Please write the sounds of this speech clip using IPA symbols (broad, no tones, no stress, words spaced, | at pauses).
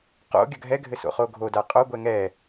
qo̰ ɡʲɐɡʱɛɡʱɘso̰ χoɡʱo daqʼoɡʷɛ ŋɛ